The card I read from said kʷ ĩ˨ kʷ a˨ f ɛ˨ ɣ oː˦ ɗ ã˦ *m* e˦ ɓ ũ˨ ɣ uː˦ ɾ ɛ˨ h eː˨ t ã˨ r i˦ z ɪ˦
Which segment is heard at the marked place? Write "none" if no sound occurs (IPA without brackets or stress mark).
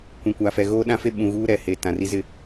f